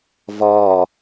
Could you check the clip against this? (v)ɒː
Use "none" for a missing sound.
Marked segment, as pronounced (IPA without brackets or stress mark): v